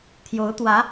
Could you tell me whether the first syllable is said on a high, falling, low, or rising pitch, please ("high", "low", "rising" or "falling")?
rising